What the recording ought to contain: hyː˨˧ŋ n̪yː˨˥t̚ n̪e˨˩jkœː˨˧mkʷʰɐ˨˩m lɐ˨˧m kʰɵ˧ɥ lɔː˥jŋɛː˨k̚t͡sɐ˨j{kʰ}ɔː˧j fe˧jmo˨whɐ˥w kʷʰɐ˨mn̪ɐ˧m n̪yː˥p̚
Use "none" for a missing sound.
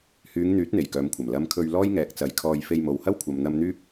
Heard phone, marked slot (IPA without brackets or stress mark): kʰ